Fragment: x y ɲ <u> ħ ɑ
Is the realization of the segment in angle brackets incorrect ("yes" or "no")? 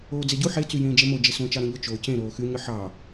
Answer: yes